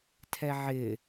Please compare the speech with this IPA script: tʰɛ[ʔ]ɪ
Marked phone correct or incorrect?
incorrect